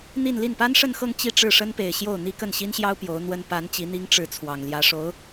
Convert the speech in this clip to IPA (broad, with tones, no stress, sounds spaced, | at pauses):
n̪ i˥˧ n l i˥˩ n p a˥ n ʂ ə˥˧ n x ɤ˥˧ ŋ t͡ɕ i˥˧ ʈ͡ʂ ɻ̩˥˩ ʂ ə˥ n p e˨˩ ɪ̯ ɕ j o˥˩ ʊ̯ n̪ i˥ k ə˥˩ n ɕ i˥ n ɕ j ɑ˥ ʊ̯ p j o˧˥ ʊ̯ n̪ w ə˥ n p a˧˥ n t͡ɕ i˧˥ n̪ i˥ ŋ ʈ͡ʂ ɻ̩˥˩ t͡sʰ w ɑ˨˩ ŋ l j ä˧˥ ʂ o˧˥ ʊ̯